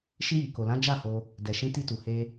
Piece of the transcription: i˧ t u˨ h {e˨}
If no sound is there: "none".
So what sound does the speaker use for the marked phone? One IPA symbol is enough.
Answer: e˧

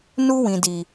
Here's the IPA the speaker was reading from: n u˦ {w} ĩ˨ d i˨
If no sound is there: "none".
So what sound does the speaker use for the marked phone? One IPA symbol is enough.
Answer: w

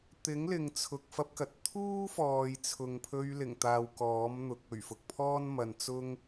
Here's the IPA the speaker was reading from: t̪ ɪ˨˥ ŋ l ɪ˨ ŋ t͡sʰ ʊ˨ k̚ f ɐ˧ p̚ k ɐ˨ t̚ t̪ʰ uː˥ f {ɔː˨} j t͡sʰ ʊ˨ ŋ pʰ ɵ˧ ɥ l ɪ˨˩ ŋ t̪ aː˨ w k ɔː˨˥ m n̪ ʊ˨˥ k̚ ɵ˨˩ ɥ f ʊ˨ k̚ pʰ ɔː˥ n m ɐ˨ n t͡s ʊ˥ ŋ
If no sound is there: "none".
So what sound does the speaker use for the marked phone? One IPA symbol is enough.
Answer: ɔː˨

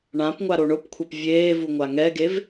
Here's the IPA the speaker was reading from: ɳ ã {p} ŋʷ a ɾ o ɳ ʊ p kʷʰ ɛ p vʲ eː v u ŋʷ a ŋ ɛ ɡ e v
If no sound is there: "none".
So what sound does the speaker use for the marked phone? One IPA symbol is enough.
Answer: p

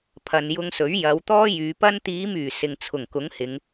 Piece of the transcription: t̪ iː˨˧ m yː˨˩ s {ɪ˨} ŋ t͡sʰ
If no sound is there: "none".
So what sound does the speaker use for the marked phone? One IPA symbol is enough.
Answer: ɪ˨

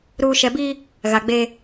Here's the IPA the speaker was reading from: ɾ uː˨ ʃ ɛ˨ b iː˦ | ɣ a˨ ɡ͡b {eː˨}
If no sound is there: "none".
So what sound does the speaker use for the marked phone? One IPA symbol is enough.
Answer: eː˦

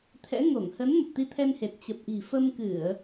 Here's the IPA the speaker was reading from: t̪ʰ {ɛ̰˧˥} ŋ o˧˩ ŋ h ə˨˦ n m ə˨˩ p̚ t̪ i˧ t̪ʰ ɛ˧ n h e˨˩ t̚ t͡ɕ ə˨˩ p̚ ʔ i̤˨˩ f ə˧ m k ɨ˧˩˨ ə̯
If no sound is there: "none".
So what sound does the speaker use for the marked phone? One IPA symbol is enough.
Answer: ɛ̰˧˥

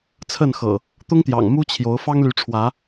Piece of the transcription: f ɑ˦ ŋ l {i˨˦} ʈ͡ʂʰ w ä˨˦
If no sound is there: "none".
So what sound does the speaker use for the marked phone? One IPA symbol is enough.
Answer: y˨˦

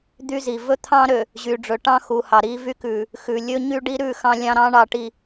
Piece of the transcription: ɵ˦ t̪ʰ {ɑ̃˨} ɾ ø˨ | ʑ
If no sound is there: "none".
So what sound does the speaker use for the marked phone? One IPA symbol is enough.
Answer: ɑ̃˦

